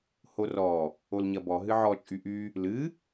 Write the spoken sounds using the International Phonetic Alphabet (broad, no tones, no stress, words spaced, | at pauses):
horɔ | olɲɐbɔ ɦɨʕɔ t͡ʃʼyʔy | lɨ